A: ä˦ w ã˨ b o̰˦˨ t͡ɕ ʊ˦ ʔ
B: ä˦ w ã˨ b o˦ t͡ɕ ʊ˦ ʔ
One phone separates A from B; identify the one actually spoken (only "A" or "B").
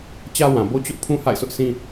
B